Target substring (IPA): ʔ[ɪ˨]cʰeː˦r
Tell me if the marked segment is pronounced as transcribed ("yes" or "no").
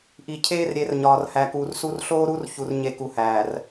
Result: no